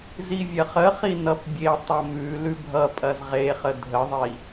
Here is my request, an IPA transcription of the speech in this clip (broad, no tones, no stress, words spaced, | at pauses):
zivʲɐχəχi nʌpbʲetˤɐ mʉ lʉbʱʌpʼɐz ʁeχə dʱəðˤi